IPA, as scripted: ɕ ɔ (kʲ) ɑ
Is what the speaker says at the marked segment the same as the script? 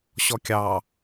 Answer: yes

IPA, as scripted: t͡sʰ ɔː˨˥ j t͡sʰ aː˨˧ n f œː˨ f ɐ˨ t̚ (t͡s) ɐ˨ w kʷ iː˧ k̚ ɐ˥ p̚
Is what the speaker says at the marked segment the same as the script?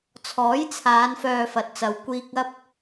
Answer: yes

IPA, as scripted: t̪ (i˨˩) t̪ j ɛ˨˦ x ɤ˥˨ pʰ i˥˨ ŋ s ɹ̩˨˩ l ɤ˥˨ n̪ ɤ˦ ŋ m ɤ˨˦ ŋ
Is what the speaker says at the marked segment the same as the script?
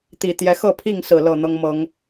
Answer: yes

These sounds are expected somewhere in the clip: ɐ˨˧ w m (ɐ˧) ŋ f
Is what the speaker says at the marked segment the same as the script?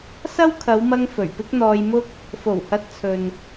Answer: yes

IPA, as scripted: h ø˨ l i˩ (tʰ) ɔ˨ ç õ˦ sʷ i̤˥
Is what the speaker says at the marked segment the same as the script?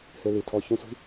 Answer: yes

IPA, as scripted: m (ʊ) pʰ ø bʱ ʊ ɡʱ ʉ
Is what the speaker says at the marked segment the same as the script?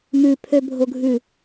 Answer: no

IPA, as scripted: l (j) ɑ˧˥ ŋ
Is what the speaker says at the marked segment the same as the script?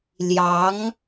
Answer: yes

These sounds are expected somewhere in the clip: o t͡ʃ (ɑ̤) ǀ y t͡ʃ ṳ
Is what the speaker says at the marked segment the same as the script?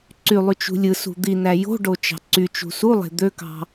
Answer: yes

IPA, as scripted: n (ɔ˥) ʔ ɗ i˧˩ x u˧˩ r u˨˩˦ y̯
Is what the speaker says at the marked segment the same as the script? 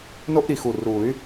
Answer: no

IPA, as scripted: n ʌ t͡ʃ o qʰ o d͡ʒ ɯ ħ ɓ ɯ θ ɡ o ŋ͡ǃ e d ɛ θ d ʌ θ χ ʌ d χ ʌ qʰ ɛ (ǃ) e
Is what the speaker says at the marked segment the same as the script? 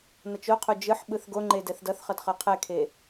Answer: no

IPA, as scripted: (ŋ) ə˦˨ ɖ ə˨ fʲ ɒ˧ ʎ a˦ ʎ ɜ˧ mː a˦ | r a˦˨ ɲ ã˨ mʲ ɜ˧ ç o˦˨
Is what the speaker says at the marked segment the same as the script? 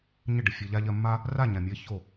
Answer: no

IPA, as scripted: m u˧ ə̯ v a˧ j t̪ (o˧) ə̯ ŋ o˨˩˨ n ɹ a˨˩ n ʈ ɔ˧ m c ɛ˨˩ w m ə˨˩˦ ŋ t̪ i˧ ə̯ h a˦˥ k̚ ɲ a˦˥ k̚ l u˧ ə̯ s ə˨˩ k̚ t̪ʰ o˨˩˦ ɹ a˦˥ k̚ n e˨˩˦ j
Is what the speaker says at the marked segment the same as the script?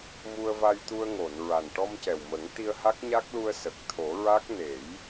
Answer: no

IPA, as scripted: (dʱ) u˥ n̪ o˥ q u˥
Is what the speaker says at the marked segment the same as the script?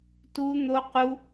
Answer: no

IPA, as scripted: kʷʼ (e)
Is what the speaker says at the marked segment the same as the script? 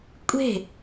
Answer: no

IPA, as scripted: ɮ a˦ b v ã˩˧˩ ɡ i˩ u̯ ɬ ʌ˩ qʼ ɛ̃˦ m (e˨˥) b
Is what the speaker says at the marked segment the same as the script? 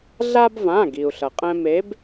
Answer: yes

